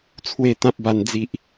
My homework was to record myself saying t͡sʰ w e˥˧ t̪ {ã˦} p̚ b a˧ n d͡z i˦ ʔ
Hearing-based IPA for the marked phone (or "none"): ã˦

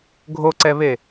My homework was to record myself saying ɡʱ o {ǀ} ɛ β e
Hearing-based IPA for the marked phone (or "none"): ǀ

